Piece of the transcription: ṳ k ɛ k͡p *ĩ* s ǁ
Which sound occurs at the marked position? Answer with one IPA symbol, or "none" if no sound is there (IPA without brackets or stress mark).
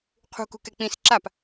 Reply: ĩ